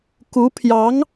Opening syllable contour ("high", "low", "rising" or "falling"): rising